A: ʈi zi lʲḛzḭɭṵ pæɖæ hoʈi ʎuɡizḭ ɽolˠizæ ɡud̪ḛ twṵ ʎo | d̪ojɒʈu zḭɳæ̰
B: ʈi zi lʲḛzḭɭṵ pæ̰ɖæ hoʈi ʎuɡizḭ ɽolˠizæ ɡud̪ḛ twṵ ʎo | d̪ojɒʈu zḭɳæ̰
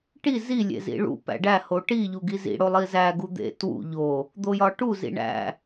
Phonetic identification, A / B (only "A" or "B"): B